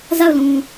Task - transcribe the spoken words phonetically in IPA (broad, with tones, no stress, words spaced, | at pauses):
za˦˨ʊ̯lũ˨